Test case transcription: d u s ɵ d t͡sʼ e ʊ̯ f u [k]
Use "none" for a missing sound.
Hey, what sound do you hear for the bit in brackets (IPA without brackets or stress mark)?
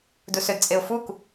k